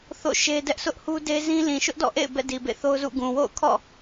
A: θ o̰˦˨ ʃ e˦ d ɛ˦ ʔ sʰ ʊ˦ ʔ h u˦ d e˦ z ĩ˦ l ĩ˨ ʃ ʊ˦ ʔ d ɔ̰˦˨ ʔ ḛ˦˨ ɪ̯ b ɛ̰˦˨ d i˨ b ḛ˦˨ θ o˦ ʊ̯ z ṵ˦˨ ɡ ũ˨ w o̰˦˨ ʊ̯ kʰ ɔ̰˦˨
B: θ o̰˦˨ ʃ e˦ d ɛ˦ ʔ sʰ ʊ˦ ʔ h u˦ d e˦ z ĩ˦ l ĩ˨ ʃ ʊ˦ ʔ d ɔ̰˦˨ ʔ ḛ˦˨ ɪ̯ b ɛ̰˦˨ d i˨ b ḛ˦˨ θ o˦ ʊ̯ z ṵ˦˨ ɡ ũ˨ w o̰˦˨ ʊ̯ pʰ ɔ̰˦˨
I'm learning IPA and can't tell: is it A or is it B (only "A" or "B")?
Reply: A